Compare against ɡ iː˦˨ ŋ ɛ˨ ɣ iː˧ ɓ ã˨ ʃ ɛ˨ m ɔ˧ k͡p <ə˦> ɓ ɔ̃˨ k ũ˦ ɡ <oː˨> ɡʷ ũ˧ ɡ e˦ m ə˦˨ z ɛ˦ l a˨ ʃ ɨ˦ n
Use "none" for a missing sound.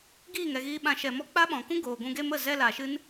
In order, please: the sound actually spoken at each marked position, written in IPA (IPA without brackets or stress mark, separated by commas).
a˦, oː˨